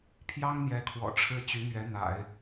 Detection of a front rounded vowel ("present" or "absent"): present